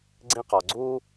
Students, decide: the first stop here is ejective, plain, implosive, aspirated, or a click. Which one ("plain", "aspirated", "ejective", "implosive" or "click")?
click